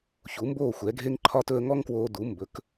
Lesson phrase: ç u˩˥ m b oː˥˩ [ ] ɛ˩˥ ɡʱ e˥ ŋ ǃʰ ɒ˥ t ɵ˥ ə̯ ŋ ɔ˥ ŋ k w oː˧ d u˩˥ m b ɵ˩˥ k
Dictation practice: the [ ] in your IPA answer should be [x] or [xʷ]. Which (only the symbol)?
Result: xʷ